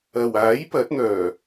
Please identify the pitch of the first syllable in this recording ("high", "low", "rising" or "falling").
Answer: low